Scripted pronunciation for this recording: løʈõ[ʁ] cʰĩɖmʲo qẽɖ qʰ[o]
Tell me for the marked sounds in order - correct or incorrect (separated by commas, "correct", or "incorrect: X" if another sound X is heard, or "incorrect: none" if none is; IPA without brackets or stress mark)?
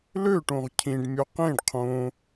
correct, incorrect: õ